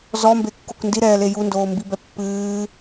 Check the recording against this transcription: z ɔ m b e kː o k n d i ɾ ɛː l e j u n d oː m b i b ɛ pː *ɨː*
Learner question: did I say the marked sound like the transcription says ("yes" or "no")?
yes